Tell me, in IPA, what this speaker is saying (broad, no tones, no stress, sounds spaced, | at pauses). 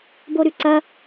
b o ɾ ʉ ǀ ɐ